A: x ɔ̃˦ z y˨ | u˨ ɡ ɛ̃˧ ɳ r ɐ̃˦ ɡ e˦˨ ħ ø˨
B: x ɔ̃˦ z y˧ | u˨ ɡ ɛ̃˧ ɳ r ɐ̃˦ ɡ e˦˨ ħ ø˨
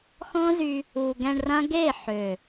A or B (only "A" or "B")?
B